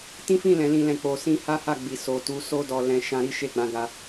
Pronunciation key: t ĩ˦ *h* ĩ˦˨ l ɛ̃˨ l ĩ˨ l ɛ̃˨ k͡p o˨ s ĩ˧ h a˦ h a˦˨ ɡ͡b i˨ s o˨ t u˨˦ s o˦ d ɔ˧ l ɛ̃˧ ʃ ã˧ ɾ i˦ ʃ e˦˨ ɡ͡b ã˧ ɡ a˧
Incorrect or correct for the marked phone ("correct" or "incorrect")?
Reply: incorrect